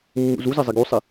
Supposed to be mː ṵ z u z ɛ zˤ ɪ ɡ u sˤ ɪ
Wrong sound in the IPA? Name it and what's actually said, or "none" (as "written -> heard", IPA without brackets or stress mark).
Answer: none